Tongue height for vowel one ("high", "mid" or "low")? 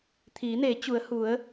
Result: high